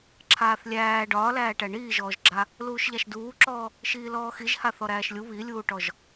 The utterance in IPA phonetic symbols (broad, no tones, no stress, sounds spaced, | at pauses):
ǁʰ aː θ lʲ æː ɖ ɒː l æː ʈ æ ɳ iː ʒ ɔː ʒ ɡ͡ǁ a | l uː ʃ ʎ a ʃ d uː ǁ ɔː | ʃ iː l ɔː x i ʒ h a θ ɔ ɾ æː ʃ lʲ u β i lʲ uː ʈ ɔ ʒ